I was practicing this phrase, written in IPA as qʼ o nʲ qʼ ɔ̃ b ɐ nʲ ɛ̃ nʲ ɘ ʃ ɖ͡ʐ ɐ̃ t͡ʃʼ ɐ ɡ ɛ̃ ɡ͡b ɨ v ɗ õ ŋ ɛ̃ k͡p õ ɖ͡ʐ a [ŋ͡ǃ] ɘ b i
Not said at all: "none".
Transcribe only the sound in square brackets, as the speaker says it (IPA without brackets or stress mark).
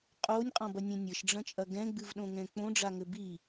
ŋ